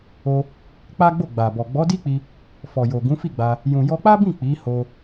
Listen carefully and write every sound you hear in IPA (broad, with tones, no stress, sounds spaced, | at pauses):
o˧ | k͡p a˦ ɡ͡b o˦˨ ɡ͡b a˨ b ɔ˨ ɡ͡b ɔ˨˦ d i˦ k͡p i˧ | f ɔ˨ j o˨ ɡ ũ˨˦ f i˦˨ ɡ͡b a˧ | j ũ˨ j ɔ˧ k͡p a˦ b ĩ˦˨ k͡p i˨˦ h o˧